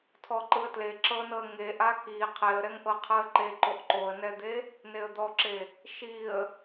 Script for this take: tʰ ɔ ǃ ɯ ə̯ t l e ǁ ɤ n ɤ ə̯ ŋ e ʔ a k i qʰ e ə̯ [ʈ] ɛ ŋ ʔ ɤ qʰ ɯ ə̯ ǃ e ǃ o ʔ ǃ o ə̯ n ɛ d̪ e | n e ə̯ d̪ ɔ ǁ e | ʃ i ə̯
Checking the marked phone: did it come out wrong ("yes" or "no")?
yes